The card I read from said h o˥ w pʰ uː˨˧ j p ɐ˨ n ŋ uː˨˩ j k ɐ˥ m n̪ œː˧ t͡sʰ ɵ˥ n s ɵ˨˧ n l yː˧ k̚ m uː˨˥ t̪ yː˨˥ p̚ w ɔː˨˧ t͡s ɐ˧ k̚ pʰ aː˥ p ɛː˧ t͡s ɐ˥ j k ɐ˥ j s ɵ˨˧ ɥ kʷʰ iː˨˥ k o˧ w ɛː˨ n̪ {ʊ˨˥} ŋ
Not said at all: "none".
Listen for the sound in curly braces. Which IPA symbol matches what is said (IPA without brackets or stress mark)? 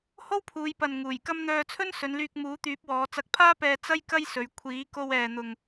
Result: ʊ˨